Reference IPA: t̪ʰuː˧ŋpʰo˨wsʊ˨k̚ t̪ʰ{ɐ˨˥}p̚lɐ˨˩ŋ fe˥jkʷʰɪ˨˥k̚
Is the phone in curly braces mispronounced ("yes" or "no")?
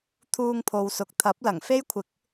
no